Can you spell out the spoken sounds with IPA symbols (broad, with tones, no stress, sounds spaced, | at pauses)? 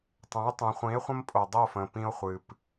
tˤ ɛ̃˩˥ j tˤ ẽ˩˧ χʷ ĩ˩˥ e̯ χʷ ə̃˦ m pʼ o˨˩ dˤ ə˥˩ o̯ f ə̃˨˩ p ĩ˦ o̯ χʷ ɨ˨˩ p